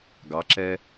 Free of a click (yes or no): no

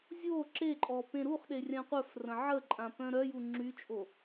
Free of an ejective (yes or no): no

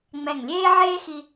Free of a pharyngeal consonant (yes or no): no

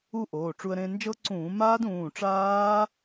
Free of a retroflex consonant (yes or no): no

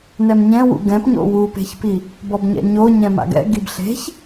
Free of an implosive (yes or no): yes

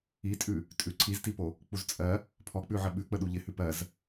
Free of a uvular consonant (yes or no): yes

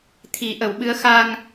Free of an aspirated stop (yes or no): no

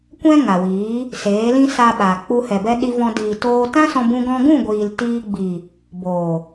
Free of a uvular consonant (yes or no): yes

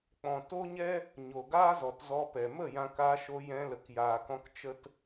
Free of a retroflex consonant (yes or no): yes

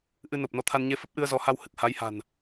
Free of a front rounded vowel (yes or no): yes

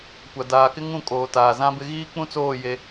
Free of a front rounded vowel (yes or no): yes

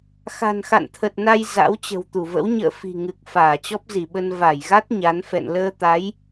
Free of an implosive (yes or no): no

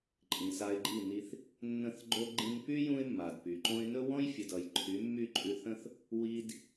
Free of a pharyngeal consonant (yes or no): yes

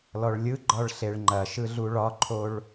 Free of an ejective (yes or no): yes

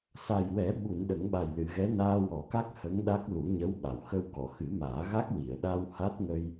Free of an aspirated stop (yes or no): yes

